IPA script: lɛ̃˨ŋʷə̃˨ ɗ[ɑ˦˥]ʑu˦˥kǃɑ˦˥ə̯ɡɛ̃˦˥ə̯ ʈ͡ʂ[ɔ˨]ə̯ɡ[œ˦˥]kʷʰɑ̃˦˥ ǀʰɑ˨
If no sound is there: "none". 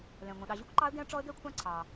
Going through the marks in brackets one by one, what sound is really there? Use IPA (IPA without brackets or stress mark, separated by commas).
ɑ˨, ɔ˦˥, ɛ˦˥